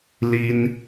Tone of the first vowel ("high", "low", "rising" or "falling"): high